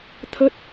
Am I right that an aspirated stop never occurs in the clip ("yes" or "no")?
no